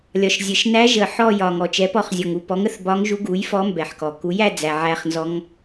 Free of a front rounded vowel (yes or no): yes